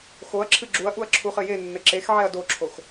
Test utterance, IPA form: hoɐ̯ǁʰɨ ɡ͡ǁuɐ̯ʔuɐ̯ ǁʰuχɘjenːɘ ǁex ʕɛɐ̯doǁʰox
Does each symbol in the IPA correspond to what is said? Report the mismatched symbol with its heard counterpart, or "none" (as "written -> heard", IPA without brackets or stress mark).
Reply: h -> x